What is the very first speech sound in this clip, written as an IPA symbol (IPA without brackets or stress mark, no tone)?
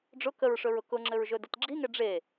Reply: ɖ͡ʐ